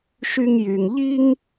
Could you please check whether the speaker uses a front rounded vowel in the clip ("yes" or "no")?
yes